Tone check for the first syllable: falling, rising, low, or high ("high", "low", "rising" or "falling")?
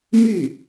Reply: falling